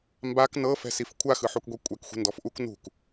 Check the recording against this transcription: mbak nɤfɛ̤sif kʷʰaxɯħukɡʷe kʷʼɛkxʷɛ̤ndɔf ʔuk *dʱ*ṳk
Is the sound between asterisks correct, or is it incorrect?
incorrect